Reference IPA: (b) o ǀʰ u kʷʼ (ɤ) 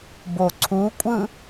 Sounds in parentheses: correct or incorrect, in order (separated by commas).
correct, incorrect